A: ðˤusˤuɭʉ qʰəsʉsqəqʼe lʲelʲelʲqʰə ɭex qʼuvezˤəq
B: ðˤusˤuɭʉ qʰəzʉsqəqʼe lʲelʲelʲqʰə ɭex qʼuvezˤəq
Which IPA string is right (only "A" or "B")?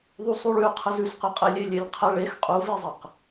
B